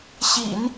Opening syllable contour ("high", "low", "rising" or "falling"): low